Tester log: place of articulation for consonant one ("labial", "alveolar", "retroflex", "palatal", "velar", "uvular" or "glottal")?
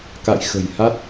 velar